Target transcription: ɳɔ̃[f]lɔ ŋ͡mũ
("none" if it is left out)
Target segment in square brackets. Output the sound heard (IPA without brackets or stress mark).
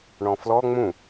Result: f